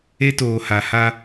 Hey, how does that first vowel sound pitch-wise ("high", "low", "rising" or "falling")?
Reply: high